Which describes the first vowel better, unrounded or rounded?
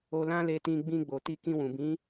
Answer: rounded